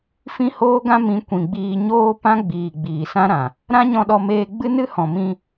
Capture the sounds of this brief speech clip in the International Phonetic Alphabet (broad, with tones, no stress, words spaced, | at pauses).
fĩ˦hoː˦ɡã˦ mĩ˨˦kʷĩ˨ɡ͡biː˧ɲoː˦ pã˦ɡ͡biː˨ ɡ͡biː˨sã˦ɾã˨ | ɾã˦ɲɔ̃˧ɗɔ˧meː˧ ɡ͡bɨ˦nɨ˦ hɔ̃˨mĩ˧